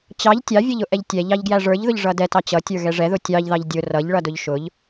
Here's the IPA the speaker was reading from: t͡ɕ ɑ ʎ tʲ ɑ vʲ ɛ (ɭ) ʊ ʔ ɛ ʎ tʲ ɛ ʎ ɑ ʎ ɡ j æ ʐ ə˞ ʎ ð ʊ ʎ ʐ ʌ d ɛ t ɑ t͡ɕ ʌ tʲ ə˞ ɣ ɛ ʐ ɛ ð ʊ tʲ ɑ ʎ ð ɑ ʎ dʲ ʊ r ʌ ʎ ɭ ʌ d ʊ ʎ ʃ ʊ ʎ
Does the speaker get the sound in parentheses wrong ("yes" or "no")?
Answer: yes